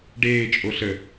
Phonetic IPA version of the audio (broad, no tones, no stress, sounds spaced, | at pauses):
ɖ eː t͡ʃʼ o ɬ ə